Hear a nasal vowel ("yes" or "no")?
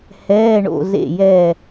no